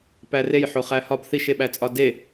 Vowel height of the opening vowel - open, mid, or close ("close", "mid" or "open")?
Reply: open